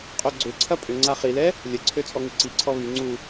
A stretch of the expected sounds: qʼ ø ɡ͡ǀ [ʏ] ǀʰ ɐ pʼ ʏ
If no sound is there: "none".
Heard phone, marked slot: ʏ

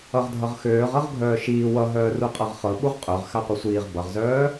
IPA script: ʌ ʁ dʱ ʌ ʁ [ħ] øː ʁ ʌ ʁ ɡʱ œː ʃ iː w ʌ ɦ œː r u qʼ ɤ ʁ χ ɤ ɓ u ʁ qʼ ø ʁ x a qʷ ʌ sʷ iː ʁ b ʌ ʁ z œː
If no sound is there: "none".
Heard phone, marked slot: x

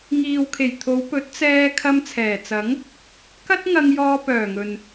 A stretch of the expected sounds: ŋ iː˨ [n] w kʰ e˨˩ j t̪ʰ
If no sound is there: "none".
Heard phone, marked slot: none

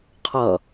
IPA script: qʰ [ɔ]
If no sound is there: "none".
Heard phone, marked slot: ʌ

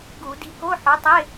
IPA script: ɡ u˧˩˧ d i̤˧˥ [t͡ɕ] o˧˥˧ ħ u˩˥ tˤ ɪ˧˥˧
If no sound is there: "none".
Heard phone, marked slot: k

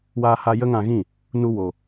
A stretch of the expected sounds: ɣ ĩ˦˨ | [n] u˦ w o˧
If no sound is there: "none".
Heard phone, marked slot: n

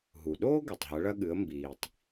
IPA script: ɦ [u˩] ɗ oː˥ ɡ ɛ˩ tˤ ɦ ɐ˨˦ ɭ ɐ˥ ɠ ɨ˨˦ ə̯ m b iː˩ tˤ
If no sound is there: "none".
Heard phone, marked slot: u˩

